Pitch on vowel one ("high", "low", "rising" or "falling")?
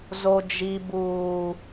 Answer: low